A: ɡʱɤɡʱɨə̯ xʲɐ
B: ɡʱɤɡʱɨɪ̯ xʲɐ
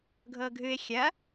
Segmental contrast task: B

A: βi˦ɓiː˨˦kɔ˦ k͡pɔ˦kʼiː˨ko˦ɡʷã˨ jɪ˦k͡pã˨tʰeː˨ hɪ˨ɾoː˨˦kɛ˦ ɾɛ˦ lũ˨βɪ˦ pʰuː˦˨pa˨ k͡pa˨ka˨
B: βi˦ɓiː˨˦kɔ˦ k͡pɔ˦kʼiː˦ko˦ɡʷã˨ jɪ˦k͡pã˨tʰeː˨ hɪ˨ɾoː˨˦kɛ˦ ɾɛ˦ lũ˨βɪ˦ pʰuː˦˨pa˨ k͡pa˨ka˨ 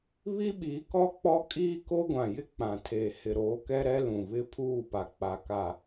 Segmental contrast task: B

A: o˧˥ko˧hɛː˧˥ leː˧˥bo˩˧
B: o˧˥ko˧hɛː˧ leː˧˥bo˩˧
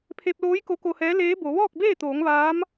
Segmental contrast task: A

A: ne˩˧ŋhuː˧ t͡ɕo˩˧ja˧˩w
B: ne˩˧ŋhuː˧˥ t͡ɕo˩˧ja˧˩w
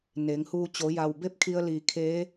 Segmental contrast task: A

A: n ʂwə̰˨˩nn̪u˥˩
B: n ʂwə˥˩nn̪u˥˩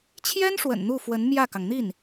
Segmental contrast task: A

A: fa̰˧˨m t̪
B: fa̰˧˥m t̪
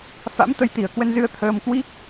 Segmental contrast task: B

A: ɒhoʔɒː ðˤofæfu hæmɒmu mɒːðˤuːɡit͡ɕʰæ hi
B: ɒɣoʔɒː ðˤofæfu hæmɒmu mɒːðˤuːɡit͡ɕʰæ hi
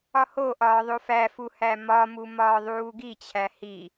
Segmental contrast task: A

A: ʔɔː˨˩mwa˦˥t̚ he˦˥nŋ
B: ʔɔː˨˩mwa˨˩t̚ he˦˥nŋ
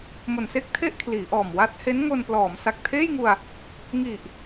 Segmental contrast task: A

